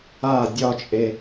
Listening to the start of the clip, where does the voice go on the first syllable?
falling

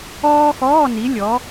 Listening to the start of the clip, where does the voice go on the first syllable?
high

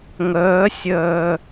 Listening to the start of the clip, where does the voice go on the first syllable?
rising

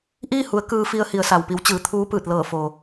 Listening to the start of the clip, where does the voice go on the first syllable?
falling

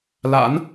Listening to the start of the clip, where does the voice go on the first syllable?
rising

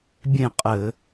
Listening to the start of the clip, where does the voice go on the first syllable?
falling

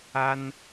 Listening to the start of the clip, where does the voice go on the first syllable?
high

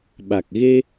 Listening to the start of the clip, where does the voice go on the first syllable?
low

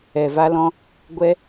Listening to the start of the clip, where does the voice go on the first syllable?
low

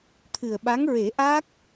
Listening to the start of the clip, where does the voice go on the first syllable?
low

